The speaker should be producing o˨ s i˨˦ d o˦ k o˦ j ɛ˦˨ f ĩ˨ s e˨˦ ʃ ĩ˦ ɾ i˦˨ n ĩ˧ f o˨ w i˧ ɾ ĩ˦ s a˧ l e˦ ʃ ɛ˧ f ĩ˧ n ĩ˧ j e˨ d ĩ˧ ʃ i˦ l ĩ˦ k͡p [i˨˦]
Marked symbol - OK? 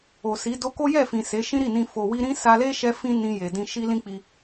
no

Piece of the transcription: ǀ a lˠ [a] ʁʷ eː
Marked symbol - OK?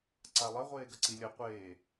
no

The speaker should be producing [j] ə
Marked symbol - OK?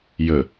yes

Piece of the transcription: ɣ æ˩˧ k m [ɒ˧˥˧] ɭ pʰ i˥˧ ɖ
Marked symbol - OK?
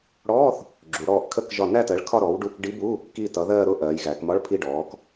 yes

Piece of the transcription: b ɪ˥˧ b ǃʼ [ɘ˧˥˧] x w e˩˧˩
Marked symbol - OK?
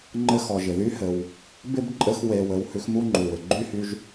yes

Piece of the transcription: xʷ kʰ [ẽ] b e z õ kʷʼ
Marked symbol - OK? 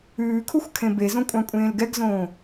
yes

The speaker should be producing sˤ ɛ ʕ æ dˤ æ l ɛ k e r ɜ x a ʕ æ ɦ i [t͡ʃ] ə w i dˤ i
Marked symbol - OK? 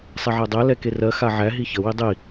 no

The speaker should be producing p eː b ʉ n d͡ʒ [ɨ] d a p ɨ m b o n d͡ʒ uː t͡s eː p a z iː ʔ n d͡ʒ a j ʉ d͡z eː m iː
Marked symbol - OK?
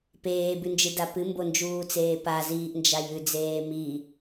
yes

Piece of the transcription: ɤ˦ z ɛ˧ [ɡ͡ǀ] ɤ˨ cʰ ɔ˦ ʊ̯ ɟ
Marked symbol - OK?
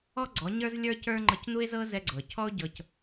yes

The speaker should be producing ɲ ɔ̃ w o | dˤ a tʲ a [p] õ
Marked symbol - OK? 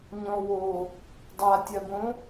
no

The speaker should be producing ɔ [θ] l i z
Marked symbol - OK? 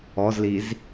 no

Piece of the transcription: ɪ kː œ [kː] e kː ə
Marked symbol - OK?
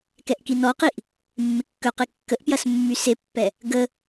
no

